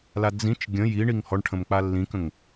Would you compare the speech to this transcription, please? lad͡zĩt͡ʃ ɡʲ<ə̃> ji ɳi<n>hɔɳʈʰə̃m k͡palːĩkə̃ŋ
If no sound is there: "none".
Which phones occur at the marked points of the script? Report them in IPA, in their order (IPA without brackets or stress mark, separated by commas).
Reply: ə̃, ŋ